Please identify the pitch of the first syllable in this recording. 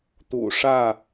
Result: low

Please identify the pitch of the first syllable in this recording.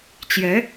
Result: rising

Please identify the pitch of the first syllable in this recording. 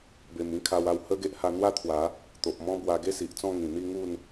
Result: low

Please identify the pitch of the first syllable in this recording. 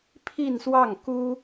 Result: falling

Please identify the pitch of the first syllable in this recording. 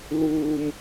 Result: high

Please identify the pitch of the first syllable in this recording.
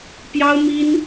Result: high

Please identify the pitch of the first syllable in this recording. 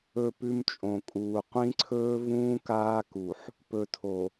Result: falling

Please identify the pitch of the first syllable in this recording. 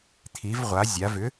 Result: rising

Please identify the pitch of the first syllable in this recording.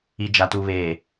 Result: low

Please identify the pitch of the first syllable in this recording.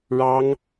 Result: high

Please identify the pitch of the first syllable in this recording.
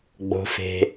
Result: low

